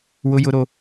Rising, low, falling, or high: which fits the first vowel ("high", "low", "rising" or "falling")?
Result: high